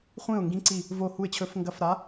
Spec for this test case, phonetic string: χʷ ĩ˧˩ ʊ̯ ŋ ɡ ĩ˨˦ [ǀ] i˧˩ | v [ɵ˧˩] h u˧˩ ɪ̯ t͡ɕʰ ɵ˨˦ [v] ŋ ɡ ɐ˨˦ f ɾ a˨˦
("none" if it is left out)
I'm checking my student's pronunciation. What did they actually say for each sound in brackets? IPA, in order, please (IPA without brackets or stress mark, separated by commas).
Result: ǀ, o˧˩, f